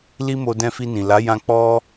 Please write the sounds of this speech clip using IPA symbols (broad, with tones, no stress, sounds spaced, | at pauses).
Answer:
l i˦ m o˧ d ɛ̃˧ f i˧ n ĩ˨ l a˨˦ j ã˧ k͡p ɔ˦